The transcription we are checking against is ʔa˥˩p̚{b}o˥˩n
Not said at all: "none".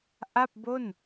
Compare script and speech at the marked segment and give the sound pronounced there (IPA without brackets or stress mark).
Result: b